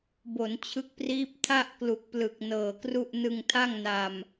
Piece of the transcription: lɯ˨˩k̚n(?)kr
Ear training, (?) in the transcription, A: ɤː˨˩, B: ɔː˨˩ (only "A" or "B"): A